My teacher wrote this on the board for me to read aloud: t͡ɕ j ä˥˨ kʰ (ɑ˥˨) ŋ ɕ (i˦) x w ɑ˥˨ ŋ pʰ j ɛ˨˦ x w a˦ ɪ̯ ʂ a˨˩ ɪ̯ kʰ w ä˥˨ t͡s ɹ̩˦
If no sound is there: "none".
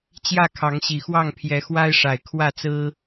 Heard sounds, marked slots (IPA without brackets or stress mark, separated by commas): ɑ˨˦, i˨˩